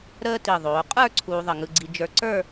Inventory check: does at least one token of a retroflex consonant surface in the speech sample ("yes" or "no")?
no